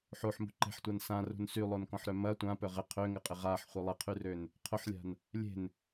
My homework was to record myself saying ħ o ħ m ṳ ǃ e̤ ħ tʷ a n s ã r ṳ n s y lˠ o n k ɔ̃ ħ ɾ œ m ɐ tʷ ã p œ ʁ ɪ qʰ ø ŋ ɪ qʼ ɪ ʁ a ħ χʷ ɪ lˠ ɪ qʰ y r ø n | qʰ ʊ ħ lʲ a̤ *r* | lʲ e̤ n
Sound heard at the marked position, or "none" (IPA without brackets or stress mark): n